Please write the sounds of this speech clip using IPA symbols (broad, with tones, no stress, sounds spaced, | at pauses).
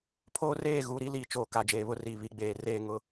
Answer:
pʰ oː˦ r eː˦˨ ɣ uː˨ ɾ i˦ l iː˨ t͡ʃ oː˨ k a˨ d͡ʒ eː˨ β ʊ˦ r iː˨ β i˦ ɡ͡b eː˦˨ r eː˦˨ ŋ ʊ˦